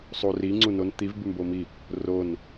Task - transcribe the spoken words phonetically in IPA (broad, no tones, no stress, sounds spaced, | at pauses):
sˤ u r i ŋ͡ǀ u n o n t̪ i v b ʉ m b o m i | r o n